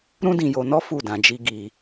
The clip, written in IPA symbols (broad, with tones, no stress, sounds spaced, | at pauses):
ɾ ũ˦ d ĩ˧ j o˧ n ɔ˦ f u˦˨ d ã˧ d͡ʒ i˦ ɡ i˧